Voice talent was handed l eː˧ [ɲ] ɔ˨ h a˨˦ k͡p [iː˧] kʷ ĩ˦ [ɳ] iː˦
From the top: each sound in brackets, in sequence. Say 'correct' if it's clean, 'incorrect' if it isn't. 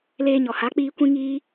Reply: correct, correct, incorrect

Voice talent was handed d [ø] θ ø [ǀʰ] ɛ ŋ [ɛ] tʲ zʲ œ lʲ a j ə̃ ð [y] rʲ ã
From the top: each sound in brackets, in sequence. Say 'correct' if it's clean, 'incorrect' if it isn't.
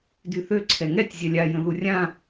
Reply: incorrect, correct, correct, incorrect

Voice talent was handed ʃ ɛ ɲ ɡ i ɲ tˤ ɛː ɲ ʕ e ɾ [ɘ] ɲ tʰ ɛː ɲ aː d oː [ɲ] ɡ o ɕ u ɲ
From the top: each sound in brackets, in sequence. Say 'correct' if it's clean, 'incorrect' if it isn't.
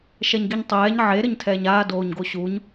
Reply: correct, correct

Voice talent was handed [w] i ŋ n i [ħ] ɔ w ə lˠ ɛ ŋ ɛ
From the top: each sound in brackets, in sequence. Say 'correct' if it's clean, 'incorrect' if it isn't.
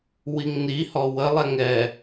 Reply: correct, incorrect

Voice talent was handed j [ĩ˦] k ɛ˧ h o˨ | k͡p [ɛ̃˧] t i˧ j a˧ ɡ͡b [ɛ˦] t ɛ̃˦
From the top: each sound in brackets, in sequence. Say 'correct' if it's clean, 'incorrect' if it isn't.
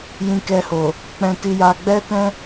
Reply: incorrect, correct, correct

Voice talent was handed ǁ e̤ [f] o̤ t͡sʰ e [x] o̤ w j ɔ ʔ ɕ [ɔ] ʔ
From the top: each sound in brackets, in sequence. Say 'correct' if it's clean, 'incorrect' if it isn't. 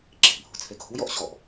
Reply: incorrect, incorrect, correct

